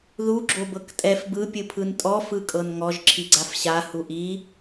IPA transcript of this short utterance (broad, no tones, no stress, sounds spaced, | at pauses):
ð u ɡ͡ǁ o b ɤ k tʼ ɛ f b ɯ pʲ ɯ pʰ ɯ n tʼ ɔ f ɯ kʼ ɤ n ŋ ɔ ʒ ǁʰ i ɡ͡ǀ a f ɕ a h u ʔ i